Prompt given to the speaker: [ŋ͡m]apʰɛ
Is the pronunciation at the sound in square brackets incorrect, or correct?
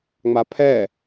correct